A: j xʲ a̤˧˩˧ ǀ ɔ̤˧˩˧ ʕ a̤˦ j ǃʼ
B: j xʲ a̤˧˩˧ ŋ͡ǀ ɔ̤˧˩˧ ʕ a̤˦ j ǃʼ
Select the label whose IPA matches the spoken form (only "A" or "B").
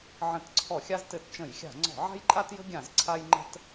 B